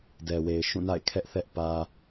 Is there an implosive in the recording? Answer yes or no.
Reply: no